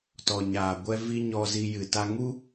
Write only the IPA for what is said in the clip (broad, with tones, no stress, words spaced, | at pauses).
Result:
tɔ˨ɲaː˨ ɡʷɛ˧vi˧ ɲɔ˧zi˧ jɨ˨ta˧ŋu˦